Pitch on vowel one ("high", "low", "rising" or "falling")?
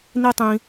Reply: high